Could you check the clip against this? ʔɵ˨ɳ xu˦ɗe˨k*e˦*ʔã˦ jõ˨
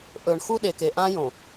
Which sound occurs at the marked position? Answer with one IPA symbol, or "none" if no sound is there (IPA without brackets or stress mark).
e˨